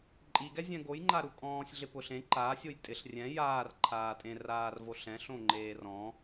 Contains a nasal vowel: yes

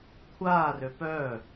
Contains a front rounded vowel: yes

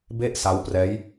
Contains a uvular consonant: no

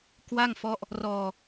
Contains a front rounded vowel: no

